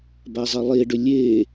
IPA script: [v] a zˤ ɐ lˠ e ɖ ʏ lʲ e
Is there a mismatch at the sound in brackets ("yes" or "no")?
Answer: yes